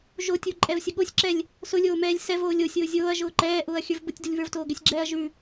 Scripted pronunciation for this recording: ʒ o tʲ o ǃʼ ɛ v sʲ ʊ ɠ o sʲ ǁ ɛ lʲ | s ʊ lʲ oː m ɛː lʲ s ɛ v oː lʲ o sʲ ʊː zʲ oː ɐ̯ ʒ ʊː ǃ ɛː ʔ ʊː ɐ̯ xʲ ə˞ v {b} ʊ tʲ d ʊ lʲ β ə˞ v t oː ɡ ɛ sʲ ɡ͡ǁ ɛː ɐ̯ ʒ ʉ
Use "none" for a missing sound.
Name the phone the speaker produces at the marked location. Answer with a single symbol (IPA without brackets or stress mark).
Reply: b